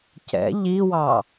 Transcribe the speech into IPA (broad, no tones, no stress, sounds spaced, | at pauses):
c ɛ̰ ʎ i w ɑ